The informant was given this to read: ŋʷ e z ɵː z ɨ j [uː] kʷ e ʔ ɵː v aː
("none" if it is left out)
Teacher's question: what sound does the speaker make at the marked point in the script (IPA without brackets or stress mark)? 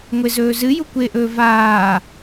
u